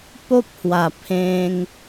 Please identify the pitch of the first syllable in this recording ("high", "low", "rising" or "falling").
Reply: high